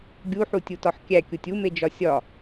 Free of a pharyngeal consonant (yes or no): no